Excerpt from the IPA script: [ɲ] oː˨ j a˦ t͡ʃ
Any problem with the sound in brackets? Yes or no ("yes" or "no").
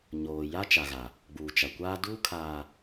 no